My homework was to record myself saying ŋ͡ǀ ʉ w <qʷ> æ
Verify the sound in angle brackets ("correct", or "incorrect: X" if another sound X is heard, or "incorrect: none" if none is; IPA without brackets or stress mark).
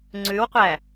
correct